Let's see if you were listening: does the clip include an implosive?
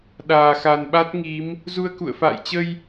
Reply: yes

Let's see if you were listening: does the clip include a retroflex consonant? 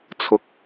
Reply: no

